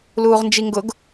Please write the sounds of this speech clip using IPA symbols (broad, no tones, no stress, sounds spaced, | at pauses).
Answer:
l uː ʁ n d͡ʒ i ŋ ɡ ʊ ɡ